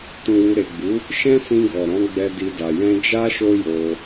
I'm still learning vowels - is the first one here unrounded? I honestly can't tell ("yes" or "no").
no